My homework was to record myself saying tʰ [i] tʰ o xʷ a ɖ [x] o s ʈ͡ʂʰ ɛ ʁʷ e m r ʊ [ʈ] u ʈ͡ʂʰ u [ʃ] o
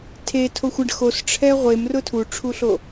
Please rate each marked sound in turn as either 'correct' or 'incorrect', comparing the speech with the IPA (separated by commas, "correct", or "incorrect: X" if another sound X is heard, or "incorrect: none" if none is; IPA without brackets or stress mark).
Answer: incorrect: e, correct, incorrect: tʰ, incorrect: ɬ